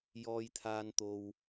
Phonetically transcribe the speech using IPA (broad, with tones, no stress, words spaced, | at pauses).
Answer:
jɔː˨jt̪ʰaː˨n t̪o˨w